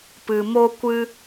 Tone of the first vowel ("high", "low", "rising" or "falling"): low